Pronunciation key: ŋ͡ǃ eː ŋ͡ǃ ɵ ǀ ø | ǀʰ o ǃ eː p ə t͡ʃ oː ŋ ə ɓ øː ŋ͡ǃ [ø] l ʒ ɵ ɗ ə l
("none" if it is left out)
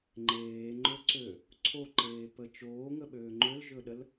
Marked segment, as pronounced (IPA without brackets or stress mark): ø